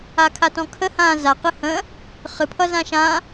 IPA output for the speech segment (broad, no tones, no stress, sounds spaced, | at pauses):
a kʰ a t ɔ̃ kʰ ə h ã z a q ɨ h ə̃ | χ ɨ pʰ ʌ z ã ʃ ã